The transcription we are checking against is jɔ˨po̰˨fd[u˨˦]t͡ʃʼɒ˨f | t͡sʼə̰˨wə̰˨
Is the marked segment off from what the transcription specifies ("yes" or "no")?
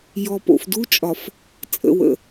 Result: yes